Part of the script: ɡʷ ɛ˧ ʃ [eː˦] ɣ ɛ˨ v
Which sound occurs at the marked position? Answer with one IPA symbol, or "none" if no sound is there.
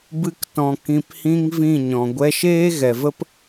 eː˦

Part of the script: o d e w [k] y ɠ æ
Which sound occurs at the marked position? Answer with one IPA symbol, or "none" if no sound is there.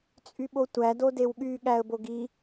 ɠ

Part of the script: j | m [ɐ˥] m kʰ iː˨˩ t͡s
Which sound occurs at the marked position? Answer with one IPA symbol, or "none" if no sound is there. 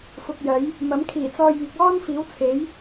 ɐ˨˥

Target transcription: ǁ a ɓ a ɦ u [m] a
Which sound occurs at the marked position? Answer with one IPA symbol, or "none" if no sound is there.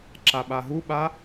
ɓ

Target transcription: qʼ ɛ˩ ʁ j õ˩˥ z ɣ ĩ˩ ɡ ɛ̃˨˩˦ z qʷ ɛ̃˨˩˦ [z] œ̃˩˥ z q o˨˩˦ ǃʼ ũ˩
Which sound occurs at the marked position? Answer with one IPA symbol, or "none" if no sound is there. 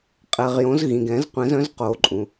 z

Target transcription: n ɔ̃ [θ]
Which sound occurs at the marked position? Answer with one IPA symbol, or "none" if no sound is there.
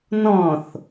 θ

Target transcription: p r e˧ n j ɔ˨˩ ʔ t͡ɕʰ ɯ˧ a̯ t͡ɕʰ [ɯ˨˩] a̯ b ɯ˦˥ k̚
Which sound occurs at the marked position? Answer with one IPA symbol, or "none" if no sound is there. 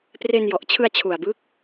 u˨˩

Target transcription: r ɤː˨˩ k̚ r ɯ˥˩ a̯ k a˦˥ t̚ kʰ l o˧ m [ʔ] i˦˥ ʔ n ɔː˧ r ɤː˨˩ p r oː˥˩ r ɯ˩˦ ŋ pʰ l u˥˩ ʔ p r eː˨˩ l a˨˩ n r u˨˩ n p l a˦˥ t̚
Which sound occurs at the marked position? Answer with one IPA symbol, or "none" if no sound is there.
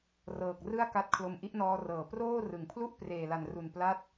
ʔ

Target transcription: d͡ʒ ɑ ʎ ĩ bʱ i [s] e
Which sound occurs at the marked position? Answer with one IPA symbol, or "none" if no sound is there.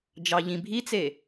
t͡s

